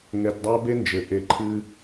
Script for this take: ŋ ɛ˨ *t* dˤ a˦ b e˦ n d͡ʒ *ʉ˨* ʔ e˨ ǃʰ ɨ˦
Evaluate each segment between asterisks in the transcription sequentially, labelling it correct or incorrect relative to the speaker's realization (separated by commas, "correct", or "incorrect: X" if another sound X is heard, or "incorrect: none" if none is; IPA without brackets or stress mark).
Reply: correct, incorrect: ɘ˨